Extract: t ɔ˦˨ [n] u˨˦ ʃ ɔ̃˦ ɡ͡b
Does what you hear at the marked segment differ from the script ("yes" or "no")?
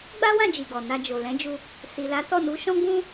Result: no